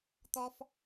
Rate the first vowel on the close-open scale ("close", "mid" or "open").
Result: mid